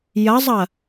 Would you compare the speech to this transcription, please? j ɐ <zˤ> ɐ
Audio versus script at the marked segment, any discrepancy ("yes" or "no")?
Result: no